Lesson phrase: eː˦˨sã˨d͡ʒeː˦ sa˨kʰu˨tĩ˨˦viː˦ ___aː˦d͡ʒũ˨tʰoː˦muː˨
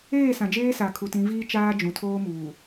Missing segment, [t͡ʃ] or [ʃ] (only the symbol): t͡ʃ